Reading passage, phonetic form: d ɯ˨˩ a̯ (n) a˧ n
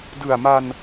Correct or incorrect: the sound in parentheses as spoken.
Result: incorrect: m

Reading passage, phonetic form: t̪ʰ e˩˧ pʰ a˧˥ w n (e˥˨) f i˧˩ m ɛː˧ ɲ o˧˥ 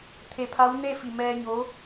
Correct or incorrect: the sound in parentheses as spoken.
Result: correct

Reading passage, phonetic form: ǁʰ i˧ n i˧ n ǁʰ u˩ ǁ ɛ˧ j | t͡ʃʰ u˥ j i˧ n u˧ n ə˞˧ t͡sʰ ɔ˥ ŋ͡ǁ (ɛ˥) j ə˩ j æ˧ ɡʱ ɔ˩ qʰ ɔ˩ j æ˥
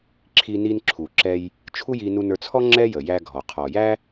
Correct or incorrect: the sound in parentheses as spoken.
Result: correct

